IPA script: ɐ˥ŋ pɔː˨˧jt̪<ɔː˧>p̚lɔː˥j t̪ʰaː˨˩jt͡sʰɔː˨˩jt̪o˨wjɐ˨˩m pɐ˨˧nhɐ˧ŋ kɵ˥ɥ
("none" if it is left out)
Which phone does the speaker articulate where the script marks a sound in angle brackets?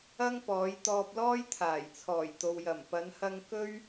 ɔː˧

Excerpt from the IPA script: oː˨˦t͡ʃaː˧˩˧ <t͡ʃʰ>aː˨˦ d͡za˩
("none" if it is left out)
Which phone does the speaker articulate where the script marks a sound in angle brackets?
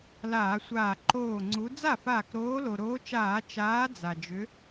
t͡ʃ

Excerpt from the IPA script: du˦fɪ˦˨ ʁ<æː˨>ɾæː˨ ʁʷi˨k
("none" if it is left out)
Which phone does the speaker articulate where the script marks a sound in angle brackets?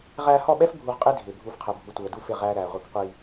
æː˦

